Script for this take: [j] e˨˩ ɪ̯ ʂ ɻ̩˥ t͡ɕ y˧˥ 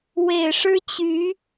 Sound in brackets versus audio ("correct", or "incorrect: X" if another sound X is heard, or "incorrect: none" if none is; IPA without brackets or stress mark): incorrect: w